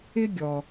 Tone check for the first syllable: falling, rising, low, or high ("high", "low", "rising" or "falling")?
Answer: high